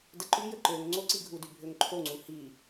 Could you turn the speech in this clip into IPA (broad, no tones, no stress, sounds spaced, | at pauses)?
d ə ǃ y j ə ǃ ø ŋ ŋ͡ǀ o ǀ i ɡʱ u d y bʱ ø ŋ ǃʰ o ŋ͡ǀ u h i